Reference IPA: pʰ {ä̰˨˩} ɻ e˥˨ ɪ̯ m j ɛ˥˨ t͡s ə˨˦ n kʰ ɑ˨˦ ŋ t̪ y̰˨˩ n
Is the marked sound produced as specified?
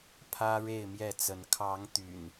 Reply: no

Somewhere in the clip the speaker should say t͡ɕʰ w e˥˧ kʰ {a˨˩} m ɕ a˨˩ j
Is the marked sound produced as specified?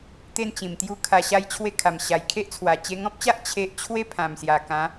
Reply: yes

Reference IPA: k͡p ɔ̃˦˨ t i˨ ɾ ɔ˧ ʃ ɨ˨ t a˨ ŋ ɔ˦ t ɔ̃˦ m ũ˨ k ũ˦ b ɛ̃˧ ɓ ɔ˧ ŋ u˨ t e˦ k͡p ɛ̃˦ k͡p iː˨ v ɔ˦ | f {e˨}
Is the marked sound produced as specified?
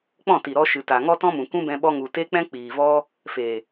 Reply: yes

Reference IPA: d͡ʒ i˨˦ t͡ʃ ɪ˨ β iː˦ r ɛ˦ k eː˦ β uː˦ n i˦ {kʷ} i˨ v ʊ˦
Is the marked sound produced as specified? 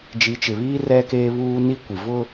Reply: yes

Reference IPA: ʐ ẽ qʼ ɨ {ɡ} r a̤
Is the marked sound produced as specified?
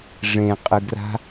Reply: yes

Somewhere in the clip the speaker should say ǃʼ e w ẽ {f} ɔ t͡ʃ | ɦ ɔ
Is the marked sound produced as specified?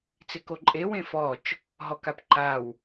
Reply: yes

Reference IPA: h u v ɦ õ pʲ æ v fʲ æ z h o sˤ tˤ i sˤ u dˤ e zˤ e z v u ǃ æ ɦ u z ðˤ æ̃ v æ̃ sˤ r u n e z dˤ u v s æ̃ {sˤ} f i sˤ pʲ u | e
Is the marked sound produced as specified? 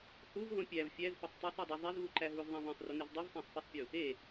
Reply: yes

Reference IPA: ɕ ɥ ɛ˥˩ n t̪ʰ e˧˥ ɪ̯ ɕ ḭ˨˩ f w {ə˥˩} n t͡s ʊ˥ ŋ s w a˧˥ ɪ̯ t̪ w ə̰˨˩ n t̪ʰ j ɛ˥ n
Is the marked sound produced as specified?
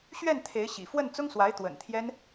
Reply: yes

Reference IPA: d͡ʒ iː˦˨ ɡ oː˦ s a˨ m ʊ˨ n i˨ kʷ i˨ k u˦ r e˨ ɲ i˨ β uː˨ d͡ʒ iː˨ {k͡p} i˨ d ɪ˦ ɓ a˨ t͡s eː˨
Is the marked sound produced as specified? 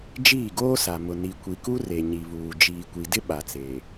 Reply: no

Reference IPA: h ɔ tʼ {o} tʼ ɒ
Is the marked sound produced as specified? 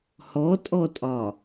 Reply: no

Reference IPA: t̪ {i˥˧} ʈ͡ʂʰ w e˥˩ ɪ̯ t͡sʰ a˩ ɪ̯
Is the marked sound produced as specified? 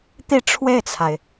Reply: yes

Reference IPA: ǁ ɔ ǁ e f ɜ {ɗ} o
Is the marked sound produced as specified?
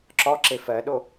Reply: yes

